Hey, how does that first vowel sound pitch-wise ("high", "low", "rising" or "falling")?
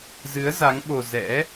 rising